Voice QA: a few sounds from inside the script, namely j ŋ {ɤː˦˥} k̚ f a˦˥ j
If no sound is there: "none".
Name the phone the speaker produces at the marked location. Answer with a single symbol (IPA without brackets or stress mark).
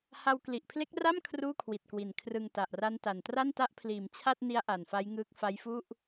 ɯː˦˥